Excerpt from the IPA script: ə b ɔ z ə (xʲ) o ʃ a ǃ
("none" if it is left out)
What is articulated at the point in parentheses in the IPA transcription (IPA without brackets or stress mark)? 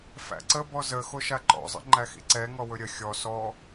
x